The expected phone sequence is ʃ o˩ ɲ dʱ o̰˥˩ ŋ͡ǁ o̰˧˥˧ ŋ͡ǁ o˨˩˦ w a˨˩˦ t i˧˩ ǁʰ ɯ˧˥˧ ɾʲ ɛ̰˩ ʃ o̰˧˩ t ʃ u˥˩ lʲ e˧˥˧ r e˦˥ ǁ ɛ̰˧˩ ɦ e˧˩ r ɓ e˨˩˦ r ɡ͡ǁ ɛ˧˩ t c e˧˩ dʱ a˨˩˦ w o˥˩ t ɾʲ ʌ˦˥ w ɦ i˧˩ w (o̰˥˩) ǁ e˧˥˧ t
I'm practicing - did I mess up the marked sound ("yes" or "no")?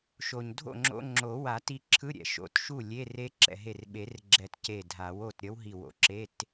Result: yes